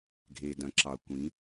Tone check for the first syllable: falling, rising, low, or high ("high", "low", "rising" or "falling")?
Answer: low